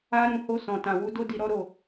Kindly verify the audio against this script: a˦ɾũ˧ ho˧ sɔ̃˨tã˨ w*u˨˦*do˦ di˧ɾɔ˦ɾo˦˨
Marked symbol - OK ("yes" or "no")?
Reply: yes